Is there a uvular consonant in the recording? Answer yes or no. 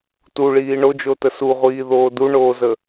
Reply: yes